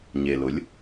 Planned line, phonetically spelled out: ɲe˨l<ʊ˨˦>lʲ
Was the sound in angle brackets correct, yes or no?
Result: yes